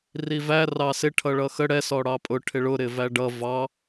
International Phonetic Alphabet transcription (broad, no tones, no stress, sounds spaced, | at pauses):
r i v æ r ɑ s ɪ ʈʰ ʌ ɭ ʌ x ə ɽ ɛ s ɔ ɽ ɑ pʼ ʊ ʈʰ ɪ ɭ ʊ ɾ ɪ v æ ɖ ʌ v ɑ